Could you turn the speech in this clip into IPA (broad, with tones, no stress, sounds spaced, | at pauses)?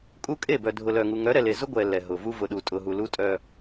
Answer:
kʼ u˦ kʼ e˦˨ b œ˨ dʱ ʊ˨ l œ˨ ŋ u˨ ŋ œ˨˦ ɾ ɛ˨ l e˨ z ʊ˦ ɡʷ ɛ˨ l ɛ˨ ɦ ʊ˨ v u˦ v ʊ˨ ɗ u˨ tʼ ʊ˨ ɦ u˨ l u˦ tʼ œ˦